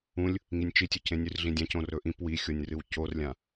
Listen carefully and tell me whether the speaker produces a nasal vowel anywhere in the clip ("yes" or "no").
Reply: yes